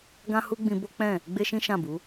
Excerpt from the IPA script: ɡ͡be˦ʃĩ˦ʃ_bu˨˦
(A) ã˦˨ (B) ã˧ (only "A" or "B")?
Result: A